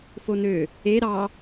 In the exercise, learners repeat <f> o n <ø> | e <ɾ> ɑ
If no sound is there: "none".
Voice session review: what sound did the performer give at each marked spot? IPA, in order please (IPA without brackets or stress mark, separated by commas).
f, ø, ɾ